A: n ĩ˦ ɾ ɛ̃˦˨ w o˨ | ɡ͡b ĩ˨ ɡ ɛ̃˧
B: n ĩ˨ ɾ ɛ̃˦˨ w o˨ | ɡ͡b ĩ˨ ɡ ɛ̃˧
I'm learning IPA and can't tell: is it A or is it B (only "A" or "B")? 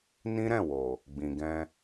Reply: A